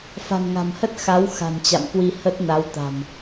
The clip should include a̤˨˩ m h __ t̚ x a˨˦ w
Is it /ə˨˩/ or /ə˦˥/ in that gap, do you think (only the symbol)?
ə˦˥